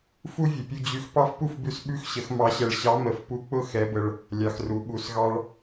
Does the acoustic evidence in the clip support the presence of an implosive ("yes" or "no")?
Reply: yes